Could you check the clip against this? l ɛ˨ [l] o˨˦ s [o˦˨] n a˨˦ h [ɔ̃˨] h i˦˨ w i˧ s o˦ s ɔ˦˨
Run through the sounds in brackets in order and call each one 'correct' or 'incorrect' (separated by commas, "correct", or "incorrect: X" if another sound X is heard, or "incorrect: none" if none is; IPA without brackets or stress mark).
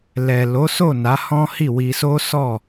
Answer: correct, correct, incorrect: ɔ̃˦